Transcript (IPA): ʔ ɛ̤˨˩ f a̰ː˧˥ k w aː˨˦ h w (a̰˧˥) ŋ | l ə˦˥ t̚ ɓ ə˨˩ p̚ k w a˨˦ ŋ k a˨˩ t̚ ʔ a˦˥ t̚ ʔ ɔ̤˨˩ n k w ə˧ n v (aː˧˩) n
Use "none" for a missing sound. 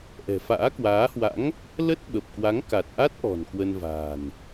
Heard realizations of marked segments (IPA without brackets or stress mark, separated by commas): a̰˧˥, a̤ː˨˩